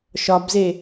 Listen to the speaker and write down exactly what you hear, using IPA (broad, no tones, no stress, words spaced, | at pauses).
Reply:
ʃɒbze